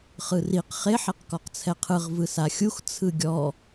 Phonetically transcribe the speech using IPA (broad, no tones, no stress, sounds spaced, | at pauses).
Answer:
χ ɯ r i q χ e ħ i q k ɔ q t͡sʰ ɛ qʰ ɯ ʁ v ɯ s a xʲ u x t͡sʰ ɯ ɡʲ ɔ